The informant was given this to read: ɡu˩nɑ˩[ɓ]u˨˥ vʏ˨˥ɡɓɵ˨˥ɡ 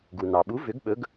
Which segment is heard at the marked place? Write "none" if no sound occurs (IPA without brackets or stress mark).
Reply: ɓ